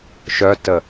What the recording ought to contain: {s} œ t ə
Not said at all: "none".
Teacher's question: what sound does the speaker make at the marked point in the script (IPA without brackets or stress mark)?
ʃ